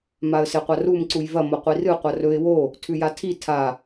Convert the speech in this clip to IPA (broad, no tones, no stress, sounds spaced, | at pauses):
m a ə̯ s e qʷ a r u m ǀ u j v ɐ m o qʷ i r ɨ qʷ ɐ r ɵ ɪ̯ w o | tʰ ʉ j a tʰ i tʰ a